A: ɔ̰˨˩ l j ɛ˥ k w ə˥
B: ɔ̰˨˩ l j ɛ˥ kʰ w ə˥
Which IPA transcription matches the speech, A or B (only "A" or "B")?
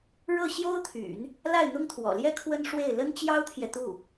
B